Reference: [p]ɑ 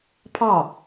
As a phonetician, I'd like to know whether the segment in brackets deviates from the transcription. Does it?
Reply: yes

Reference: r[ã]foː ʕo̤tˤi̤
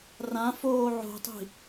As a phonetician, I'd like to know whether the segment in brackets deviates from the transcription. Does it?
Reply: no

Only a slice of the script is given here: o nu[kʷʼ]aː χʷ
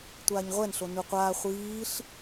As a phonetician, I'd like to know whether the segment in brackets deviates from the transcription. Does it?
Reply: yes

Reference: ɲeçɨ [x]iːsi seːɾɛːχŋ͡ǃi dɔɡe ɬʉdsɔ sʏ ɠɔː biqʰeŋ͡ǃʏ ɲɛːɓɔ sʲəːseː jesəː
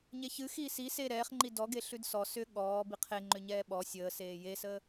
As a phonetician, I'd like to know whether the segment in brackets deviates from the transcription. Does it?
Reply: no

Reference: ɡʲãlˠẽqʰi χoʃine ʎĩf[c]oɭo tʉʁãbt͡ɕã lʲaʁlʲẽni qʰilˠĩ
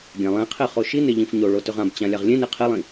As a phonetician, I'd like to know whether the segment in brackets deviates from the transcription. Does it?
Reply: yes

